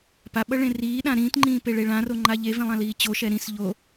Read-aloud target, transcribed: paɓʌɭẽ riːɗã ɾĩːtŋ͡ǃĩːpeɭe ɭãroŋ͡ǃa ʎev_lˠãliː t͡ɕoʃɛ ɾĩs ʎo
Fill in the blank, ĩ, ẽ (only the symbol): ĩ